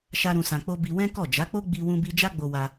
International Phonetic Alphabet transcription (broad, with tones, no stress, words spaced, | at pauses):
ʃa˦ɾũ˧sã˧k͡po˦ bi˧wɛ̃˦kɔ˦˨ d͡ʒa˨˦k͡po˦ ɡ͡bi˧wũ˧bi˧ d͡ʒa˦ɡ͡bo˧wa˧